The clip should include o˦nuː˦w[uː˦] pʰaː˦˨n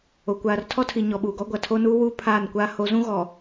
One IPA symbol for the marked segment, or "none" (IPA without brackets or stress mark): uː˦